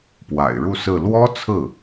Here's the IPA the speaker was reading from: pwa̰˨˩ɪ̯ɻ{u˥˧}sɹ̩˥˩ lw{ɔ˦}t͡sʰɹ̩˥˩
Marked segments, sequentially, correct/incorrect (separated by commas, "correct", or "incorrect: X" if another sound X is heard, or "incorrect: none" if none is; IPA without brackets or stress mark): correct, incorrect: ɔ˥